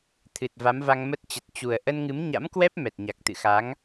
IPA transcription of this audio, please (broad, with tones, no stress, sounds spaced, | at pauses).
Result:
t̪ʰ ɨ˨˩ t̚ v a˨˦ m v a˧ ŋ m ə˦˥ t̚ t͡ɕ ə˨˩ t̚ t͡ɕ u˨˩ ə̯ ʔ ə˧ n ŋ ɨ˨˦ m ɲ a̰˧˥ m k w ɛ˦˥ p̚ m ɛ˨˩ t̚ ɲ a˨˩ k̚ t̪ ɨ̰˧˨ x a˨˦ ŋ